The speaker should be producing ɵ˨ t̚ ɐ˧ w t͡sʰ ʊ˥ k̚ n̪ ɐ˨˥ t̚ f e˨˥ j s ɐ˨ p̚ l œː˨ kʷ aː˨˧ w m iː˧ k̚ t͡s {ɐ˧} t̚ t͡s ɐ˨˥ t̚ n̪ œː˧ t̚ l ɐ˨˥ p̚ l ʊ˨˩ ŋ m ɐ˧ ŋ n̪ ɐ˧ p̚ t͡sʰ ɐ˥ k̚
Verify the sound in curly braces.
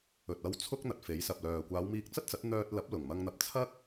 incorrect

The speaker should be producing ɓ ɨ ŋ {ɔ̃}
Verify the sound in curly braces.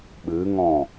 correct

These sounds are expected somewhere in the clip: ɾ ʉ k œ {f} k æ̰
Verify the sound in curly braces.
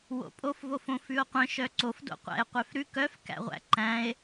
correct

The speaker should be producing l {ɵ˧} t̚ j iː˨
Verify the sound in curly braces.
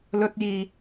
correct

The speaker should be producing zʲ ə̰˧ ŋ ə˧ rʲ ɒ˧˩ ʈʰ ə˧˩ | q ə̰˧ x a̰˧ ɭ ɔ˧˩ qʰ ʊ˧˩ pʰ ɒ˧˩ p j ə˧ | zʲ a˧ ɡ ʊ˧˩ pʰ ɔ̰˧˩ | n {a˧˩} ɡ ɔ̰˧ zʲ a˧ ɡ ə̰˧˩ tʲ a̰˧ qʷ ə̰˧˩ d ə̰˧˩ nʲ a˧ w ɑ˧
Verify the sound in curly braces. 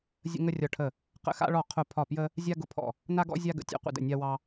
incorrect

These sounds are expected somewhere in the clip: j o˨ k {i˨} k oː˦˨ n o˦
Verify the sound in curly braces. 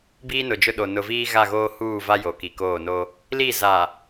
correct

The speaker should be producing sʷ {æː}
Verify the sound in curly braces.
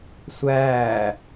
correct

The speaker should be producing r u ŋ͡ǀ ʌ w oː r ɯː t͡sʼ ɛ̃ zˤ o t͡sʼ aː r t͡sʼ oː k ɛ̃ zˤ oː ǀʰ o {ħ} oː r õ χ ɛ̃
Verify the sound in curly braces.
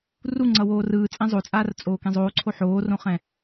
correct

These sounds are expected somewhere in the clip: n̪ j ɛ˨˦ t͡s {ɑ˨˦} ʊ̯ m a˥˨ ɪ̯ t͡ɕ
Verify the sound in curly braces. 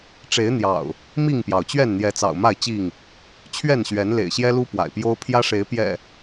incorrect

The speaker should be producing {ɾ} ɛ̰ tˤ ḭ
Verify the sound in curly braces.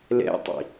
incorrect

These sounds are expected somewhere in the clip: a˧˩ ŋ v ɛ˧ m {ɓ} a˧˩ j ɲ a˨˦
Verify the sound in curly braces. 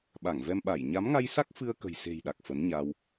correct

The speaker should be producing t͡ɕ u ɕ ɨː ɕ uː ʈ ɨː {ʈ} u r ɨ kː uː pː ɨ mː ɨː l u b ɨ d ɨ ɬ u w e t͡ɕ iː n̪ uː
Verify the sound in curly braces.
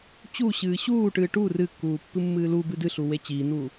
correct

